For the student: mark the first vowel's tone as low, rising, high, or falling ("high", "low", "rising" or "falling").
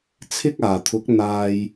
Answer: high